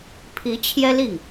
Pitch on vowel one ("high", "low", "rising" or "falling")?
rising